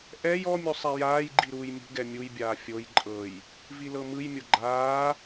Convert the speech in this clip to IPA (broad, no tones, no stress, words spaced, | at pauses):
ʔɛj ɔmʲu sˤɛjaːjɡ͡ǃi ɾuːjmʲṳɡɛ mʲujbʲaː fʲoj ǃʼɤj | vilɤmɯjmʲo ɡ͡ǃaː